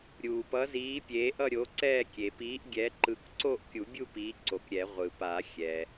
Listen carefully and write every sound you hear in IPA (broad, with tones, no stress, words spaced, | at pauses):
ɾʲuː˩pʌ˨˥ziː˨˥ pʲeː˨˥ʔʌ˥˧ɾʲo˨˥ǀɛː˥˧ kʲe˩piː˨˥ʔɡʲɛ˨˥ ǃɯ˨˥kǀo˥˧ʔkʲu˨˩˦bʲu˥˧ piː˨˥ǀo˩kɾʲɛ˨˩˦ ʁʷɯ˩pa˨˩˦xʲɛ˩